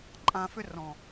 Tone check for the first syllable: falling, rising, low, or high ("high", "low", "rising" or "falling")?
low